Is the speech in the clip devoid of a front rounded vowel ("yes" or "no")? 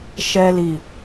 yes